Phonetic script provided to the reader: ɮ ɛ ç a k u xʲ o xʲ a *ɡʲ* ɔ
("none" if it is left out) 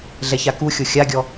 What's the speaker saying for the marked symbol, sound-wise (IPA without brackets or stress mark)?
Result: ɡʲ